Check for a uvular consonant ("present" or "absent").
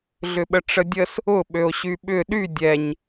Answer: absent